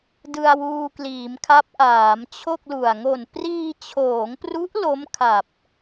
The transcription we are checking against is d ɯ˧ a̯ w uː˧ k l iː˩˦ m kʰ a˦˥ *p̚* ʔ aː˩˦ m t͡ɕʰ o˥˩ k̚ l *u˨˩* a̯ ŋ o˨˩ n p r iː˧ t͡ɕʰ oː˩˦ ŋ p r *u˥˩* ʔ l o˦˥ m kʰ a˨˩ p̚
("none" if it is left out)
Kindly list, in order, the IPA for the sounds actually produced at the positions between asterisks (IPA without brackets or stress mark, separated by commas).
p̚, u˨˩, u˦˥